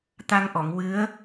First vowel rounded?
no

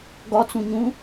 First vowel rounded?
yes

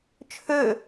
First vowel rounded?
yes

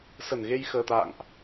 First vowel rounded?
no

